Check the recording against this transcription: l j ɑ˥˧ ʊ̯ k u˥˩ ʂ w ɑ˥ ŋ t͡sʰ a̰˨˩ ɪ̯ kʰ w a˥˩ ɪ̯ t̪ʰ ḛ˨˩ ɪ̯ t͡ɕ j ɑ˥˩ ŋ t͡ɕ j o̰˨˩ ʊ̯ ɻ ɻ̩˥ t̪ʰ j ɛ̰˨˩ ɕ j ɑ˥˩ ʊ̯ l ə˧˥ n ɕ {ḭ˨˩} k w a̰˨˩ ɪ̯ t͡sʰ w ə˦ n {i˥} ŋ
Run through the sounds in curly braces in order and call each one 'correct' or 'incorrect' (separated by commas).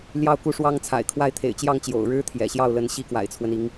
incorrect, incorrect